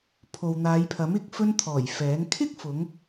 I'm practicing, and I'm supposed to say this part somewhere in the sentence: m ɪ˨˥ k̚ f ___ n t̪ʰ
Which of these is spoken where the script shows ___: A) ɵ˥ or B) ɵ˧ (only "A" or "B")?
B